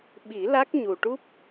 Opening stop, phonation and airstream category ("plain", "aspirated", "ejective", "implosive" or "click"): implosive